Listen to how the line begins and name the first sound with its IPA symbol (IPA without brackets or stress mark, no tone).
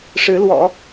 ʂ